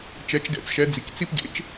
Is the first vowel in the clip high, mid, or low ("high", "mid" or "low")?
mid